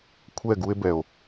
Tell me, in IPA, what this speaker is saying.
kʷʰɛ˦˨ɡu˦e̯bɛ˨o̯

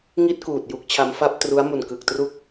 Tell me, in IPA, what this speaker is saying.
ŋi˥˩t̚kuː˨˩t̚ ju˦˥k̚t͡ɕʰa˦˥mfa˥˩p̚ tru˦˥a̯mu˨˩nkɯ˨˩k̚tru˥˩k̚

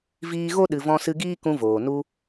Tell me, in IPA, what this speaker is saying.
viː˧ɣo˦ ɗɨ˨vɔ̃˧sɨ˧ɡiː˦ kũ˧voː˨ nu˧

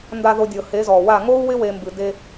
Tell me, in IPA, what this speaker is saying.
nda˨ðo˨ dʲɤ˨he˨˦zɔ˨wa˦˨ ŋo˦u̯wɪ˦ we˦mbɨ˦ de˦

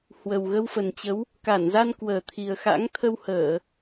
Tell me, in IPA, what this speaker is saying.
hwə˨˩w ɣə˧wfə˨˩nt͡ɕə˨˦w | ka˧˩nza˧n kwəː˨˩t̪ʰi˨˩ə̯xa̰˧˥ŋ t̪ʰə˧whəː˧˩˨

